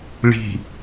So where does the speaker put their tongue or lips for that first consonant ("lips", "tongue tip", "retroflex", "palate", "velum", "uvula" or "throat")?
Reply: retroflex